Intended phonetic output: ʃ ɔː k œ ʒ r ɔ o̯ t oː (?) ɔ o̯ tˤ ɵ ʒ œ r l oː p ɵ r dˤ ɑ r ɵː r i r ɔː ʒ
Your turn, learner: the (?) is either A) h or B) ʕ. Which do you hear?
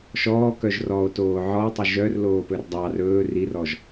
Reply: B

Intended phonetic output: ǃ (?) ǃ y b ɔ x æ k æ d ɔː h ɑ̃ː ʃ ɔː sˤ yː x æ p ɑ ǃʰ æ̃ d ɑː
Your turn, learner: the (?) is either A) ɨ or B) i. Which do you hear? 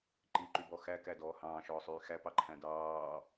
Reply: B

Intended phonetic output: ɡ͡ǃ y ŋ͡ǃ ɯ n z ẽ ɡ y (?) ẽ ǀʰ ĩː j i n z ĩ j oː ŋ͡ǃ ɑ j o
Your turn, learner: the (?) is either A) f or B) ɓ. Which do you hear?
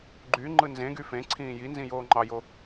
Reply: A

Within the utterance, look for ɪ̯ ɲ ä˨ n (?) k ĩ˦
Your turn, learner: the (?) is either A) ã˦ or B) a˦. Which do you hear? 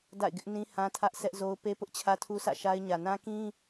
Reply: A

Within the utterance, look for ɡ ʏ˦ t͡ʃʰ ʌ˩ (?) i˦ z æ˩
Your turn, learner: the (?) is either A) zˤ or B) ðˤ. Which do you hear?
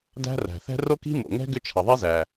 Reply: B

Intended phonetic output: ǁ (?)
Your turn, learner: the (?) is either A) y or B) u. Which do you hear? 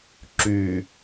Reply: A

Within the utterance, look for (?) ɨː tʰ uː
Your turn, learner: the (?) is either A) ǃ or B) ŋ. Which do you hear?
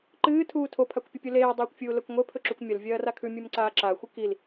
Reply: A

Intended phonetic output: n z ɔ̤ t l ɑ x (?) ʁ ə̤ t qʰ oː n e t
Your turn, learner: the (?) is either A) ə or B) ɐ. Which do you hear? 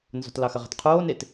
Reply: B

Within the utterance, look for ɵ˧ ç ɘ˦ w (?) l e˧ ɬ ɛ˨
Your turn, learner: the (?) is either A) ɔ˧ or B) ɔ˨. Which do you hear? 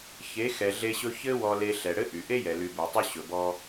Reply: A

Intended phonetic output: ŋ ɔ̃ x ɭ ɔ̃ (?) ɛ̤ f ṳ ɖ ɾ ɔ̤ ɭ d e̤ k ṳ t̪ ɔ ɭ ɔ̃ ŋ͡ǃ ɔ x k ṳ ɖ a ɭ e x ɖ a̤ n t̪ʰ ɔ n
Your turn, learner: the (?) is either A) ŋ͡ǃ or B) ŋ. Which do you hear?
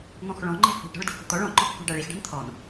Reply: A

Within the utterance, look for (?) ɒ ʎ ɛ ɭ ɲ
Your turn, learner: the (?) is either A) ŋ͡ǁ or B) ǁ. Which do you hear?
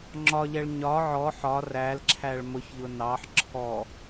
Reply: A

